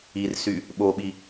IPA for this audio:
i r s y | ɓ o ɓ i

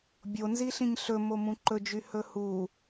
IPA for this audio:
bʲ o n z i ɬ ĩ ɲ ɬ ɵ m o m ũ ǃ ɵ d͡ʒ y h ɵ h u

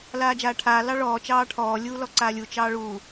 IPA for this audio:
l aː d͡ʒ aː ʈʰ aː l ɑ ɭ ɔː t͡ʃ ɑː ʈʰ ɔː lʲ uː l ɔ ǀ aː lʲ u t͡ʃ ɑː ɭ uː

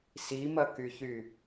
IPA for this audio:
s i m ɐ k y ç y

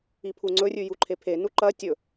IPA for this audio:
i pʰ u ŋ͡ǀ ɵ rʲ ʉ j u ǃʰ e pʰ e n u ǃ ɐ tʲ ɵ

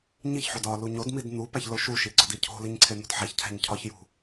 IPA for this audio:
ɲ i ç ħ o d ɒ l u ɲ o d m i d n̪ u p æ ç l o ʃ u ʃ i ɡ͡ǀ ɒ d i cʰ o̤ l i ɲ ǀʰ e n̪ o̤ d ħ æ ç cʰ æ̤ ɲ cʰ ɒ ç j ṳ

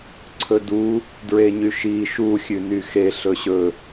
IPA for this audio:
ǀʰ ɵ d u | d ɹ e ɲ y ʃ i ʃ u xʲ ʉ n y x e ɬ ɵ ɕ ɵ

